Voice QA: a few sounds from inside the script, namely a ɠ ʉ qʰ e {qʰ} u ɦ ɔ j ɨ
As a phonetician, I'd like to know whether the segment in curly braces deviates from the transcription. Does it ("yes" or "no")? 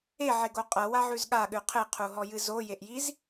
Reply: no